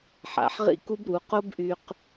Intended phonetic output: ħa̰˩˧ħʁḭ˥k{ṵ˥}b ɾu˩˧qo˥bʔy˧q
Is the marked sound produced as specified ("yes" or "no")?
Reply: no